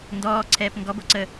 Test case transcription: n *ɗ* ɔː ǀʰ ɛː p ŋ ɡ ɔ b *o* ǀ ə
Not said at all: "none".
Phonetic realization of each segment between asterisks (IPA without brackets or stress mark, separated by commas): d, o